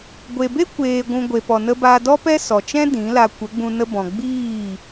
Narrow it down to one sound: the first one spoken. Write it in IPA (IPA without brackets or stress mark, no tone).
ɡʷ